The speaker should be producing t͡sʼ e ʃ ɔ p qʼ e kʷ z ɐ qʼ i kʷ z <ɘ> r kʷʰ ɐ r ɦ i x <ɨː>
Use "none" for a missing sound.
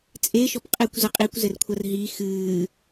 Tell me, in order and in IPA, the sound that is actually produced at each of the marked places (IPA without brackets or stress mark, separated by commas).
ɘ, ɨː